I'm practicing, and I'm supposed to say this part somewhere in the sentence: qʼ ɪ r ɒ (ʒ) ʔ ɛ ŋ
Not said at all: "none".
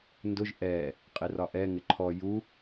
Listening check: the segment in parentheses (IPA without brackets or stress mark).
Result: none